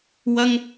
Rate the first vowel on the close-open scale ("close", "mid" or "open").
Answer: open